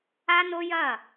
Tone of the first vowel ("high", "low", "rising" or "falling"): high